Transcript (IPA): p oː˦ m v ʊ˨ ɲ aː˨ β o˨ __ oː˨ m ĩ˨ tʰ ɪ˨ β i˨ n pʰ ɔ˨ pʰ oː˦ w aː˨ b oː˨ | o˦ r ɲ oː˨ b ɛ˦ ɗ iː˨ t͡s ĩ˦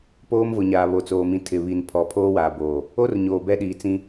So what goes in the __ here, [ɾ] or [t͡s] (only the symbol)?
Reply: t͡s